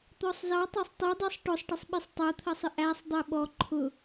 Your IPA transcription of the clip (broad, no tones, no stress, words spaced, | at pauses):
t̪ɔsˤzɑ tˤɜsˤtˤi dˤisˤʈʊsˤʈɪsˤ ɓisˤtˤɜt̪ʰɜsˤɪ ʔæsˤ dˤiɓɔ ǃʰʊ